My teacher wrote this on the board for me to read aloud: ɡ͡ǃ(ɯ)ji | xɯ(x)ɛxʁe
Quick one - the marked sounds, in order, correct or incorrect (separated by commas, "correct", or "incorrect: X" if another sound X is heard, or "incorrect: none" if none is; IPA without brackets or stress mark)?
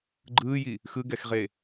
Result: incorrect: ɯː, incorrect: ɡ